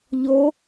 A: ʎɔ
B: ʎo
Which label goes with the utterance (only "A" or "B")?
B